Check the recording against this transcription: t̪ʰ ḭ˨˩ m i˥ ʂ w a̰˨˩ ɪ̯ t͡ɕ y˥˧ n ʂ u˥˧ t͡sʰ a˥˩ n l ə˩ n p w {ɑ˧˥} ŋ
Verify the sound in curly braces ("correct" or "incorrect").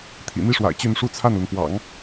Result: incorrect